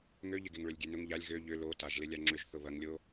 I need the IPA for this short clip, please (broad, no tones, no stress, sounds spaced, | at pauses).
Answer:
ŋ ø ʎ ɪ ɡ e ŋ ɭ ø lʲ ɡʲ e n ʊ ŋ ʎ a lʲ ɣ ø ʎ ʏ l o t a ʒ l ɪ lʲ a ŋ͡ǁ ʏ ʒ θ ʊ β ɐ ŋ lʲ o